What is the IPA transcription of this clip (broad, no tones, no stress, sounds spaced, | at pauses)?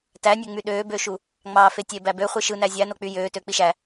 t æ nʲ ø ŋ͡m y ɗ øː b ø ʃ u | ŋ͡m ɑː f e tʲ e b æ b ø χʷ i ʃ ɯ n æ zʲ æ n o k͡p y j øː t ø k͡p i ʃ æ